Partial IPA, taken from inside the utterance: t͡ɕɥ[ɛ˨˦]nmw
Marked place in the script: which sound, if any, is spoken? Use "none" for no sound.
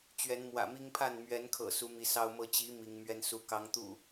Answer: ɛ˨˦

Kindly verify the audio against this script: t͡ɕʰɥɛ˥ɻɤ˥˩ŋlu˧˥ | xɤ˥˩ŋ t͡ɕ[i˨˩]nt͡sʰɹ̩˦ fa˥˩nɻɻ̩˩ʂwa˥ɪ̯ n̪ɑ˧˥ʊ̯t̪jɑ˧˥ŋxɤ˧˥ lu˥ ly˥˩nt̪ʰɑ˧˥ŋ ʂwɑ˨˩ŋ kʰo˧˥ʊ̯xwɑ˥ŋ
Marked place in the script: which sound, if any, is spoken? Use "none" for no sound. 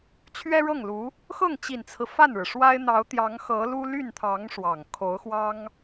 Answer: i˨˩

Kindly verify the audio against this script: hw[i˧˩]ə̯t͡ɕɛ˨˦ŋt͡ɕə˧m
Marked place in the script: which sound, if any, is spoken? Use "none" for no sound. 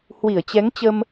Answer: i˧˩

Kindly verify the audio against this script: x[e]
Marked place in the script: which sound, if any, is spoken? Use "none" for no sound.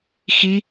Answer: i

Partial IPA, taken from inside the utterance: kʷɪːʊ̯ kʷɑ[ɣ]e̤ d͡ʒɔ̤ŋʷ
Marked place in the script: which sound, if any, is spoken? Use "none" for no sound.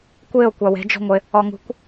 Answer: w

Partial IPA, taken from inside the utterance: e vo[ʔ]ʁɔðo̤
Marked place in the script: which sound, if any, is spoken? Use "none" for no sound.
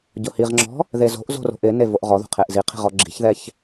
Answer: ʔ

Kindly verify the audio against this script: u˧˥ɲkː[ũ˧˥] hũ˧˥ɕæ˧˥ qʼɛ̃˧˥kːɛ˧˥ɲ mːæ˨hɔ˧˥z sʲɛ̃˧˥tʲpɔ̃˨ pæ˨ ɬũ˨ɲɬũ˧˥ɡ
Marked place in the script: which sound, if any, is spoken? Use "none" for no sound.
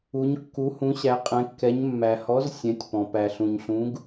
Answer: u˧˥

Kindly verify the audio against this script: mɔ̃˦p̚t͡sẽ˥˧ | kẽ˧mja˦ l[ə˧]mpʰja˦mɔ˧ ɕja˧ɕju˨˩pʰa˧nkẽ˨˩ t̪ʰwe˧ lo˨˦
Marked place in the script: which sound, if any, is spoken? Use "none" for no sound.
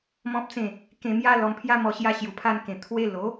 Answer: ɔ˧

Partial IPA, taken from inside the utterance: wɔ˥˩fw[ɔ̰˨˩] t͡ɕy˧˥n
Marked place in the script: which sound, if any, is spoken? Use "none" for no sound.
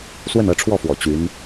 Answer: ɔ̰˨˩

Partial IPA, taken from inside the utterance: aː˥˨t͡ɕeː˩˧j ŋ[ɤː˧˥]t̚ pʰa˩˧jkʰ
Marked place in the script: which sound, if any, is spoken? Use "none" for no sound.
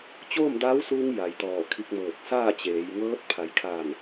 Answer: ɤː˧˥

